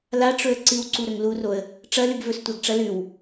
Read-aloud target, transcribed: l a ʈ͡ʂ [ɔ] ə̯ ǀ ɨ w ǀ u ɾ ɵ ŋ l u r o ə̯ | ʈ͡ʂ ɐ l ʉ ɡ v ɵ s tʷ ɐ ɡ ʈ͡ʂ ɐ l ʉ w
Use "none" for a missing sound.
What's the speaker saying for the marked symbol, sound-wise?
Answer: ɵ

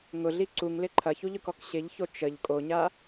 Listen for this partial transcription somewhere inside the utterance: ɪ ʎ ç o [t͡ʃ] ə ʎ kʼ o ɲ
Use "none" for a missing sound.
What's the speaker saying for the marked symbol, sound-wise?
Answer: t͡ʃ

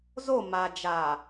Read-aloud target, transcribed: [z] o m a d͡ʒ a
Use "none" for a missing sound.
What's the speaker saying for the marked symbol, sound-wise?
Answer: z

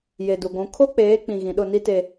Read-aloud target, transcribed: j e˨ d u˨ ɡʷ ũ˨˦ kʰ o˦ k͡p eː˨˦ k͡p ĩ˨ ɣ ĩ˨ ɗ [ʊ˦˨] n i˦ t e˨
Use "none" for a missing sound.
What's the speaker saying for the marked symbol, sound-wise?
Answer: ʊ˦˨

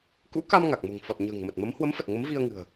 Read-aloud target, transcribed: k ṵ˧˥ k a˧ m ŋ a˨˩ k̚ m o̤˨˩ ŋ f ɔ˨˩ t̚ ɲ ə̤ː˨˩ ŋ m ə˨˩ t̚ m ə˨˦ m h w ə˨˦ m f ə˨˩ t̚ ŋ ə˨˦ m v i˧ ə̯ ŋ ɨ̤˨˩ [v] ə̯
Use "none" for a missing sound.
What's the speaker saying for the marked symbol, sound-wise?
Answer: none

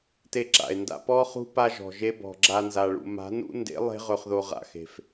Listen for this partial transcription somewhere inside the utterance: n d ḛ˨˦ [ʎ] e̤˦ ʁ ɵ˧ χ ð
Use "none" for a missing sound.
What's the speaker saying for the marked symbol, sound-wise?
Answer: lˠ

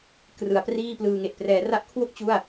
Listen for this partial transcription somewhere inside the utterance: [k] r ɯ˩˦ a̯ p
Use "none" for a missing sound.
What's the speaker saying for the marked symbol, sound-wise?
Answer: k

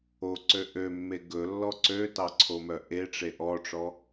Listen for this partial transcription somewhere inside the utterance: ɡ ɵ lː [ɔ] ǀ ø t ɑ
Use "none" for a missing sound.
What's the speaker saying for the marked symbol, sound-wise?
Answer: ɔ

